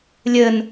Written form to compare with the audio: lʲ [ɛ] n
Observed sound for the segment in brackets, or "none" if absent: ɘ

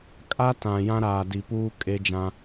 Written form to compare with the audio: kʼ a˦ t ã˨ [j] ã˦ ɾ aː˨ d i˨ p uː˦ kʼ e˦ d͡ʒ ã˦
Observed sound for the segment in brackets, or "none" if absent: j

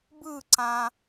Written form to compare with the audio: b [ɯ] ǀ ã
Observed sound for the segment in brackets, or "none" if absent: ɯ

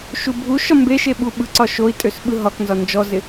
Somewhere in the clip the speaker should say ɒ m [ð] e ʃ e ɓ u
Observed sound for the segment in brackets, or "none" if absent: b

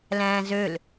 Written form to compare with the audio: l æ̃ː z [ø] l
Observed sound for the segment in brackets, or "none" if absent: ø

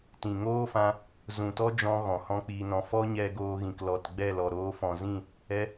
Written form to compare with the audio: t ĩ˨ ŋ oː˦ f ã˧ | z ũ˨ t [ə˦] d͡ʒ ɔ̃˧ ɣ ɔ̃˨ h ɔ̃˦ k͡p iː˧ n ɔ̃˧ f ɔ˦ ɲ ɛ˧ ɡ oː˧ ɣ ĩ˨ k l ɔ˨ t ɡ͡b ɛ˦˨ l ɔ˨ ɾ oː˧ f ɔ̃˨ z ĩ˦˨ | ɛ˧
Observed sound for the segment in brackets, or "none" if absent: ɔ˦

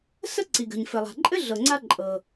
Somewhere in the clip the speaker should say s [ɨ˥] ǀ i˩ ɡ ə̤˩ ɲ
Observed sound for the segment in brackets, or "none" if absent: ə˥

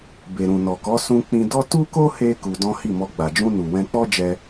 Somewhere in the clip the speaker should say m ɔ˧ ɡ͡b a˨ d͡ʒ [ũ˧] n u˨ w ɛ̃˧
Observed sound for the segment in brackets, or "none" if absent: ũ˧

